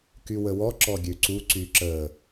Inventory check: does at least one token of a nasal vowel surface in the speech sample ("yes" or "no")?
no